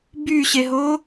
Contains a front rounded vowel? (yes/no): yes